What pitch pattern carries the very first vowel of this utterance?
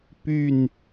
falling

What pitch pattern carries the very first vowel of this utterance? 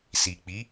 low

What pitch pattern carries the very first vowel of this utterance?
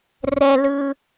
low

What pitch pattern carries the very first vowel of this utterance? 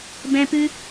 high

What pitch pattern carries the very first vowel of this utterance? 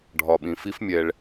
low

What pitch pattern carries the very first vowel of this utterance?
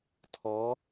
rising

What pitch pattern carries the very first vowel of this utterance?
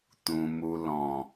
low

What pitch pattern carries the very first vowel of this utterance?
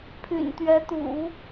low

